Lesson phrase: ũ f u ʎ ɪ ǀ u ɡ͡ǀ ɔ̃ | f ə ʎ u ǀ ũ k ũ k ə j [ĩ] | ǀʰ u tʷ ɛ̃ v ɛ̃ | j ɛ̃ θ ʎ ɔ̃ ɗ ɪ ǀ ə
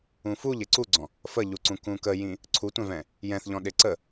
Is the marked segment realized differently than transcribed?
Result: no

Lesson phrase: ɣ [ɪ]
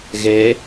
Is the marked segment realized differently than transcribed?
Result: yes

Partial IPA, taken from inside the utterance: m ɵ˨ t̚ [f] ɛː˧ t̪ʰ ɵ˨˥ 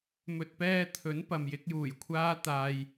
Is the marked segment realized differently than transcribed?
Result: yes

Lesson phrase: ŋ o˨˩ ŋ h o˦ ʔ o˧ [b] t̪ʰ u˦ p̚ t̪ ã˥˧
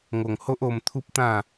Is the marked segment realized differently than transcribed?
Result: yes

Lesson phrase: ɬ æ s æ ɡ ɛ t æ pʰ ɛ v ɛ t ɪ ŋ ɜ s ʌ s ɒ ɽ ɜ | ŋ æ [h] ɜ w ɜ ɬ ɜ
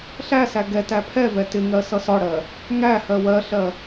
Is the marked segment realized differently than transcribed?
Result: no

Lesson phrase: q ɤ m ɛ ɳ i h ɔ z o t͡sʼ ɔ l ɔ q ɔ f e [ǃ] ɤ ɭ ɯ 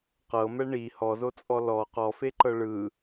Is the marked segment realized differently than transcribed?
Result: no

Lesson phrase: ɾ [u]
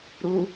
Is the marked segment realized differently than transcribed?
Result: no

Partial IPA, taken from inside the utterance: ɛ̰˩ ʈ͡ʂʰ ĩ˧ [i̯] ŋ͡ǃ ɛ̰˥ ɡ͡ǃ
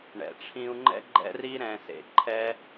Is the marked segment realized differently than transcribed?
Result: yes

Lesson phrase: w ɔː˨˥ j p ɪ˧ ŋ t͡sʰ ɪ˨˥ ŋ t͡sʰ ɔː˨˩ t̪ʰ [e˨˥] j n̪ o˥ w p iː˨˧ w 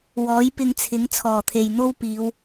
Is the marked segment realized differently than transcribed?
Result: yes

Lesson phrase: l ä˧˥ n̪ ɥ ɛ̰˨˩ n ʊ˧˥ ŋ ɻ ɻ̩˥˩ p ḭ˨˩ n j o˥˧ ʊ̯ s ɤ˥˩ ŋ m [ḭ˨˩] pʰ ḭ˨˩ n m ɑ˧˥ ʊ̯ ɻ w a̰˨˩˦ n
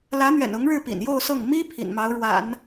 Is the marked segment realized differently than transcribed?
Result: yes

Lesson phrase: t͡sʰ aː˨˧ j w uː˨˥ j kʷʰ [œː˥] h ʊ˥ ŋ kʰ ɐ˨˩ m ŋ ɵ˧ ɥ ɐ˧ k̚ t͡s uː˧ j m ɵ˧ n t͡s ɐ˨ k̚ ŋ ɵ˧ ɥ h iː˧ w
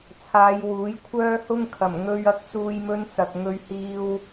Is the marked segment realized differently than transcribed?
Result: no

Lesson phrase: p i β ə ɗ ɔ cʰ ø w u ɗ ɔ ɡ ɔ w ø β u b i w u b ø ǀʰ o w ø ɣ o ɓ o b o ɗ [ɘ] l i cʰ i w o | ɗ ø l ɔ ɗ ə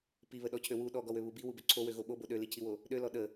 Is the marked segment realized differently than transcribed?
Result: yes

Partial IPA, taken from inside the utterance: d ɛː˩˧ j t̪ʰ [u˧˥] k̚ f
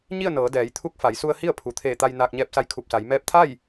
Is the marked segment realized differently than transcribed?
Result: no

